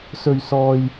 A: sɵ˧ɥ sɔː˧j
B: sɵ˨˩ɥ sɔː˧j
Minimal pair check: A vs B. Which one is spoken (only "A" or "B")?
A